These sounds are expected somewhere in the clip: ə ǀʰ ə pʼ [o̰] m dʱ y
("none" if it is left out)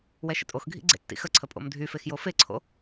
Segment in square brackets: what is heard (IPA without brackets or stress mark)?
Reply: o̰